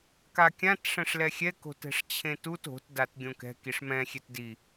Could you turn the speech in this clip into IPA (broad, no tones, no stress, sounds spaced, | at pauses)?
k a kʲ ã t ʂ ɛ̃ ʂ l ɛ xʲ ɛ k o̤ t ɛ̤ ʂ t͡ɕʰ ẽ t u t o̤ t d a t ɡʲ õ k ɛ̤ k i ʂ m ɛ̃ xʲ e t d i